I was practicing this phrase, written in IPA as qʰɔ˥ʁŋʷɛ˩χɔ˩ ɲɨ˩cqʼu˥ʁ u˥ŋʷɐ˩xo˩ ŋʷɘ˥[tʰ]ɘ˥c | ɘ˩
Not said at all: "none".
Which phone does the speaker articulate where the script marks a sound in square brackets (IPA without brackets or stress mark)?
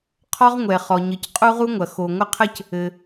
qʰ